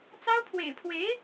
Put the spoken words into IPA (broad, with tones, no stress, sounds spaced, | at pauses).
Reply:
t͡s ɑ˥ ʊ̯ pʰ w ḛ˨˩ ɪ̯ pʰ w e˧˥ ɪ̯